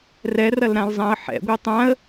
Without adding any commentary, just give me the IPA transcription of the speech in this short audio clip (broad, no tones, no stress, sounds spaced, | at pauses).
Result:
r ɛ r ɐ l ɾ ã l zˤ ã ə̯ ħ ɛ̰ ɡʷ ɛ tˤ ã ə̯